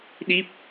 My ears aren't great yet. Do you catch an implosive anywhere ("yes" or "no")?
yes